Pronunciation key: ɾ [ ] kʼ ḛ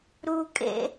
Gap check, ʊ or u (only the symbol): u